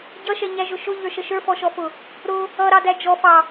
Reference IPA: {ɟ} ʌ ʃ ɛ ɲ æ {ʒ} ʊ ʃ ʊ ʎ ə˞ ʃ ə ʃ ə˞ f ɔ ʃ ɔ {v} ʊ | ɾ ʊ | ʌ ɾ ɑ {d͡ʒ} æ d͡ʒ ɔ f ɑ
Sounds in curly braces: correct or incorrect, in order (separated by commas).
correct, correct, incorrect, incorrect